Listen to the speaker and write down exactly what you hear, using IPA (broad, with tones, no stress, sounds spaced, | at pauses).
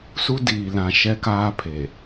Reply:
s u˦ d iː˨ l ã˨ ʃ ɛ˦ k aː˦ pʰ e˨